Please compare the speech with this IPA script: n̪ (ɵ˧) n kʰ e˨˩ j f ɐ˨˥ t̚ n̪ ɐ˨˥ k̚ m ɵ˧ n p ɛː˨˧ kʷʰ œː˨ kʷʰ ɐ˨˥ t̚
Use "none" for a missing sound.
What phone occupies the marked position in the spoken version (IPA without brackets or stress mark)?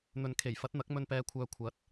ɵ˨